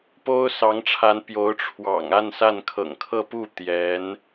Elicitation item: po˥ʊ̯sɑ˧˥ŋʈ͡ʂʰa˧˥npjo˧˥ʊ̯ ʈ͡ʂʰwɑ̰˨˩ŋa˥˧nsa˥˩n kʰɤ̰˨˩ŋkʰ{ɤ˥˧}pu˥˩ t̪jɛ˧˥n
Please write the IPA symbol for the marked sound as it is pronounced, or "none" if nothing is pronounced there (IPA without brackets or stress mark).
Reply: ɤ˥˧